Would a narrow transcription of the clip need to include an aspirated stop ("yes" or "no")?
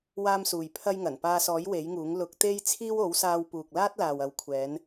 yes